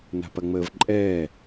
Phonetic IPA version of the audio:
n a̤ p ɐ ŋ͡m əː v ǃʼ ɛː

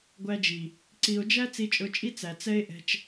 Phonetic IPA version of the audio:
ɡʷ æ˧ d͡ʒ i˨ | ǀ i˨ o̯ d͡ʒ æ˦ t͡s i˧ t͡ʃʼ ʊ˧ t͡ʃʼ i˦ t͡s æ˨ t͡s ɛ˦ e̯ ʔ ɛ̤˧ t͡ʃ

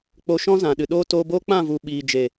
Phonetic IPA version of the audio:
k͡p o˧ ʃ ɔ̃˦ z ã˨ ɗ ɨ˨ ɗ oː˦ t oː˧ b o˦ k͡p ã˦˨ v u˨ ɓ iː˨ d͡ʒ e˨

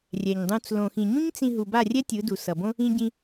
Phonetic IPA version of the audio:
rʲ ɛ˨ ɲ dˤ ũ˧ t͡s l õ˨ x ĩ˨ ɲ ũ˦ ɲ t͡s ĩ˧ ɦ u˨ b a˦˨ rʲ ɛ˦ tʲ ɯ˨˦ d u˨ s ʌ˨ b õ˦ | ĩ˧ ɟ ĩ˧

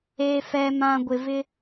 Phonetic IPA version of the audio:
eː˨ f ɛ˨ m ã˨ ɡʷ ɪ˨ v ɪ˦

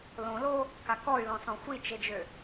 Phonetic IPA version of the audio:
l õ l o | k a k ɔ y̯ l ɔ̃ s ɔ̃ xʷ i t͡ʃ e d͡ʒ ø

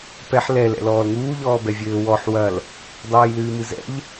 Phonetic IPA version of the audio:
p ɛ ħ l ɛ l ɛ̰ l ɔː l ŋ uː ʎ ɔː b ɛ vʲ ɘː w ɔ ħ w ɐ l | dˤ ɨː j l ɨː m ɨ z ɛ̰ ʎ

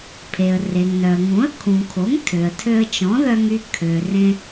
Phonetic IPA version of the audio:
pʰ e˩ ə̯ r e˩ ŋ n œ˩ ə̯ ŋ ũ˩˥ ə̯ kʰ ũ˩ kʰ o˩˥ ŋ tʰ ø˩ ə̯ tʰ ø˧ ə̯ t͡ʃ ɔ̃˩˥ ð œ˧ ŋ y˧ kʰ ø˩ r ẽ˧

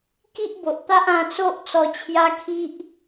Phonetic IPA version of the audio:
k i˦ ʔ b o˨ ʔ t̪ a˦ ʔ ã˧ t͡s o˦ ʔ t͡s ɔ˧ t͡ɕʰ j a˦ kʰ i˦ ʔ

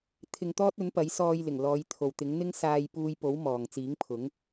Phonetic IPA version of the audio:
t̪ʰ ɪ˧ ŋ t̪ ɔː˥ t̚ ɵ˨˥ n p ɐ˨˥ j s ɔː˧ j l ɪ˨˩ ŋ l ɔː˨˧ j t̪ʰ o˨ w t̪ ɪ˨˥ ŋ n̪ ɪ˥ ŋ s aː˧ j p uː˧ j p o˨˥ w m ɔː˨ ŋ t͡s iː˨˥ ŋ pʰ ʊ˨˥ ŋ

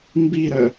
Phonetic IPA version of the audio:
m b i ɾ œ

